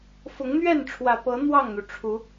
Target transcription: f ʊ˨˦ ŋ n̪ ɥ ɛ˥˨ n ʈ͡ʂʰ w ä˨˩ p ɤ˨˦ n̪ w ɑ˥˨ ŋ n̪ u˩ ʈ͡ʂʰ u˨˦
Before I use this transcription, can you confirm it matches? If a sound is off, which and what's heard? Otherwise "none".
none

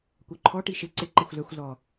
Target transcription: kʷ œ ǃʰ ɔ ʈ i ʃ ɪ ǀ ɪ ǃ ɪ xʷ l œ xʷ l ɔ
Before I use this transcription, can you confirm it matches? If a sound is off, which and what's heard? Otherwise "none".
none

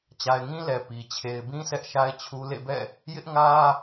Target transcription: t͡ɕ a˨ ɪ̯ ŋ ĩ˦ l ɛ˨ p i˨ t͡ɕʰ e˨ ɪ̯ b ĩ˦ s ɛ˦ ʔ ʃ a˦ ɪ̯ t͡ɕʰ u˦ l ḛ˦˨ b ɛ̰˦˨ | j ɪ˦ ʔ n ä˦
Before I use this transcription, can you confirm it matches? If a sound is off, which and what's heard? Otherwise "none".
n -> ŋ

